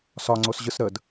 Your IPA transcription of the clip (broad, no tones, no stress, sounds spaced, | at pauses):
s ɒ ŋ͡ǀ o s ʑ ɯ s ɾ ə d